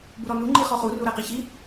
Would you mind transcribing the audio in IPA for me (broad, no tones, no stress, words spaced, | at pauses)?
buɾɔnu ŋ͡ǃiχɔχu ruɾɛqiçi